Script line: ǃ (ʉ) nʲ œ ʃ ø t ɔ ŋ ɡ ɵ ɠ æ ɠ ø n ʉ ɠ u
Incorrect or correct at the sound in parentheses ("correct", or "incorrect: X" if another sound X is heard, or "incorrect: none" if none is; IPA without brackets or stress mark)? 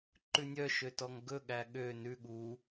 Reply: correct